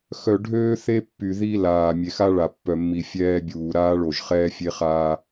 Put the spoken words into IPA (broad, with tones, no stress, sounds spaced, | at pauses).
x œ˨ ɖʱ øː˦ θ e˦ pː y˨ ð i˦ l aː˨ mʲ e˨ x a˦ ɭ a˨ pː œ˨ mː i˨ fʲ ɛː˦ bʲ uː˨ ɾ aː˦ ɭ o˨ ʒ χ ɛː˦ fʲ e˦ χ aː˦